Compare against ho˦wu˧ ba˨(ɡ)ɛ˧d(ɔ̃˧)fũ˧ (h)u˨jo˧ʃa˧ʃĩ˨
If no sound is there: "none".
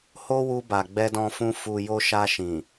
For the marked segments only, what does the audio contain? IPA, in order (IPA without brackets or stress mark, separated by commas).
ɡ͡b, ɔ̃˧, f